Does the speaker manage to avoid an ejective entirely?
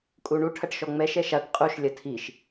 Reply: no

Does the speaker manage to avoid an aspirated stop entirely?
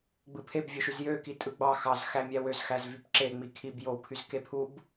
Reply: no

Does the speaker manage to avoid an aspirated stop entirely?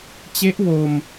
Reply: yes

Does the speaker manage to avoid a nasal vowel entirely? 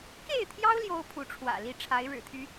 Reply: yes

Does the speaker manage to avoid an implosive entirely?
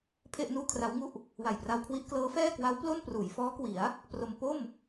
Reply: yes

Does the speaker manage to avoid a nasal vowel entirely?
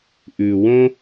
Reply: no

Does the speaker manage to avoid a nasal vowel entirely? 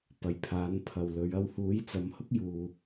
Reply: yes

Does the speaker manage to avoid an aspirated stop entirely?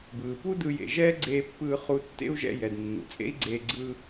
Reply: yes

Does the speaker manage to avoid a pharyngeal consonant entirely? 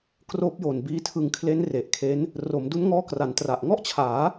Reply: yes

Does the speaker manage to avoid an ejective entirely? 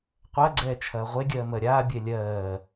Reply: yes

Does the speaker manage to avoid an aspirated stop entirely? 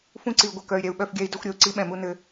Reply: yes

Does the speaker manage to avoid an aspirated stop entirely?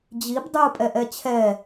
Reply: no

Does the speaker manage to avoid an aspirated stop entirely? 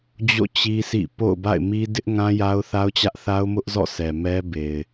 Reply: yes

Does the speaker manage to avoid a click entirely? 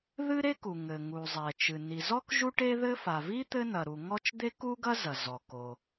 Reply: yes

